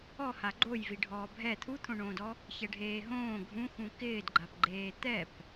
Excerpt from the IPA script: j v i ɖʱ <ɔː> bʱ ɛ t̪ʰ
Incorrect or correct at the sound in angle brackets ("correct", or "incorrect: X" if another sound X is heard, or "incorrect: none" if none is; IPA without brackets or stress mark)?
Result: correct